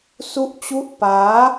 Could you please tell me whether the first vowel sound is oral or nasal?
oral